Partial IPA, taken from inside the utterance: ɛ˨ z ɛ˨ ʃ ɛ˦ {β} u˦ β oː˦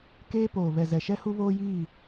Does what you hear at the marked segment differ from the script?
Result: yes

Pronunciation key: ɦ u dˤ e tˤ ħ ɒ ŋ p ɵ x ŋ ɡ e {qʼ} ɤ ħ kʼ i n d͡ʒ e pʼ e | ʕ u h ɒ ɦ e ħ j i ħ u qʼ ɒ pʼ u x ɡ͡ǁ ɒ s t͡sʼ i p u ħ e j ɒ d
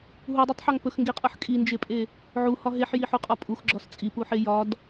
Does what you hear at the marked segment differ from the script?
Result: no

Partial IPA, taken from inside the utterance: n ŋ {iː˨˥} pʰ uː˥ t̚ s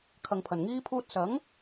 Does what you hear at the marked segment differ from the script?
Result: yes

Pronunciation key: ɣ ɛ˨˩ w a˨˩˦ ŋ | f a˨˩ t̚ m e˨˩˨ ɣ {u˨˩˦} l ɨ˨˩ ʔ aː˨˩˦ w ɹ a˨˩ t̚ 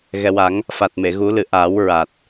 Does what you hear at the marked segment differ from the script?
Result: no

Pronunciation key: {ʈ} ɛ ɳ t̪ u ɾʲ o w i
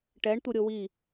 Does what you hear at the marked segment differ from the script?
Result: no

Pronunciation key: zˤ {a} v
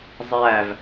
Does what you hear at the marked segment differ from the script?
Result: yes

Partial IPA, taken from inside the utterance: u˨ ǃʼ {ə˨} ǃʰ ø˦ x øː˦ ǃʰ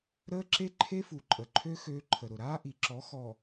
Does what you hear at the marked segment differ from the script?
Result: no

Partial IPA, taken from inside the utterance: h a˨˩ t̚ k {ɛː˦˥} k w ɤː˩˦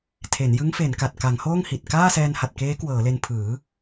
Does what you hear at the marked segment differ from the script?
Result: yes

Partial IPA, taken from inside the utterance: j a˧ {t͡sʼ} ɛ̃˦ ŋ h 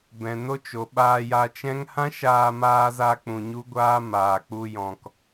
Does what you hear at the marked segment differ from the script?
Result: yes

